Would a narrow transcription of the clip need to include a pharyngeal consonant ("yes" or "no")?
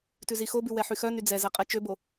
yes